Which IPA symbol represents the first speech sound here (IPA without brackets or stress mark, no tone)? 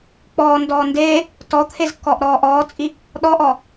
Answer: k͡p